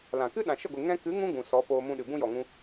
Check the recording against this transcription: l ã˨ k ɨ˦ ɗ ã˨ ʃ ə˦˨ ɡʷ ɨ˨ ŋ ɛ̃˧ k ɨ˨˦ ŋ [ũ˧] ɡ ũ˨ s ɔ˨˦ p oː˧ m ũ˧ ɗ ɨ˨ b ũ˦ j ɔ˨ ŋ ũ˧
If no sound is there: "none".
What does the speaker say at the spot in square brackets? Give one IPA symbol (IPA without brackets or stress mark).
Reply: ũ˧